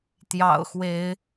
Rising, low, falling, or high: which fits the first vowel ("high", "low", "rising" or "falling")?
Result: low